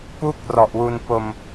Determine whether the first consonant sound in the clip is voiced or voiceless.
voiceless